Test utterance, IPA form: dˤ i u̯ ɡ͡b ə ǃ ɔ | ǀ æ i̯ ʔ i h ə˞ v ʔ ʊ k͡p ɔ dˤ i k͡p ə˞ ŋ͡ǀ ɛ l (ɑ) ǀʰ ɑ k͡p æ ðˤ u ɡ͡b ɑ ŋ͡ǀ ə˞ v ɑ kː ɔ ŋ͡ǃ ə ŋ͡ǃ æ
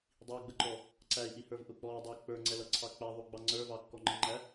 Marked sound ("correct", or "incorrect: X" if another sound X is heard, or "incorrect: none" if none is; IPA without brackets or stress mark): incorrect: ʌ